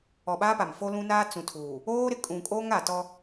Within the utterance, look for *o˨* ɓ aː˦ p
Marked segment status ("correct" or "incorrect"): incorrect